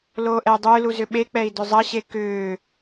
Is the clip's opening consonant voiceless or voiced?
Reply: voiced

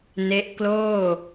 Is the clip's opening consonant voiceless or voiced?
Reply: voiced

